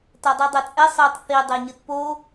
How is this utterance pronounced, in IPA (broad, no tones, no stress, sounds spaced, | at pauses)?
t a dˤ u dˤ ɛ t͡sʼ ɛ sˤ ɨː tˤ θ i dˤ e ɲ ɨ t p o